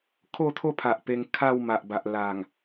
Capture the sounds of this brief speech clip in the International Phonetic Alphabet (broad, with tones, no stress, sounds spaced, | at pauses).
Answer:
kʰ o˥˧ t̪ʰ o˥˧ pʰ a˨ ʔ p e˧ ŋ kʰ a˥˧ w m a˨ ʔ b a˨ ʔ l a˨˩ ŋ